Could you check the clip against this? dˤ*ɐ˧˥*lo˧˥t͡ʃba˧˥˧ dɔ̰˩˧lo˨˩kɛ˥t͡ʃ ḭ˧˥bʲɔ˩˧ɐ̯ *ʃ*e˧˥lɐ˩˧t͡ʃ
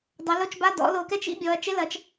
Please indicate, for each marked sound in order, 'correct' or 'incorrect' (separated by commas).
incorrect, incorrect